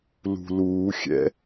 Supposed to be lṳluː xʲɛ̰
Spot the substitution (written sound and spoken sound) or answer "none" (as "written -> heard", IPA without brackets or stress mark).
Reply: none